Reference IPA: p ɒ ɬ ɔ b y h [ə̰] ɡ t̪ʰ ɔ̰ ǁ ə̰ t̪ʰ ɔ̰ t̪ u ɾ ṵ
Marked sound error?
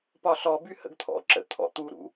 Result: no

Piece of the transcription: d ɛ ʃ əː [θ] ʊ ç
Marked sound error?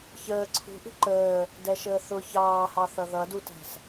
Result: no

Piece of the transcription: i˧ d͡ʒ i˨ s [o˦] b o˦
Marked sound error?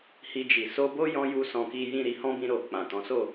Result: yes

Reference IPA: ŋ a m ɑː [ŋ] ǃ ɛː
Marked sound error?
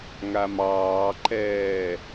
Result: yes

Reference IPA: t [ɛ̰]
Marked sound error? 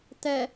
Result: yes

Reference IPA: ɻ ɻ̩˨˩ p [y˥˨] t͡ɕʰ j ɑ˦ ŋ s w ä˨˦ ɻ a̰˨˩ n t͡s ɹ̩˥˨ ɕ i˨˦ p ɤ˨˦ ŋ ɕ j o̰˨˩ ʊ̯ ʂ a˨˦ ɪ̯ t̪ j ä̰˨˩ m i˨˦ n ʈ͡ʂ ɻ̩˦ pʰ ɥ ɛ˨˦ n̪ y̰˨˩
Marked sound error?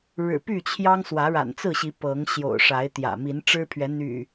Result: no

